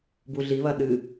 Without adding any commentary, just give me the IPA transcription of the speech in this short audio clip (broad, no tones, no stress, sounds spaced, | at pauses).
b u ɮ i β ɐ ɗ ɨ